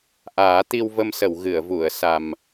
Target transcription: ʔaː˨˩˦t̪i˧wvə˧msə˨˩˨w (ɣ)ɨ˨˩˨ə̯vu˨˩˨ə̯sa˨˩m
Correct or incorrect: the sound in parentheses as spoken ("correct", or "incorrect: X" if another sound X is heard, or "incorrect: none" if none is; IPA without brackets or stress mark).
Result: correct